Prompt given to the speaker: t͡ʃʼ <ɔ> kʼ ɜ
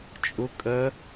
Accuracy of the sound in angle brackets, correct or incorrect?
incorrect